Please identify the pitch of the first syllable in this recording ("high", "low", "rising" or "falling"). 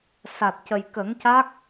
low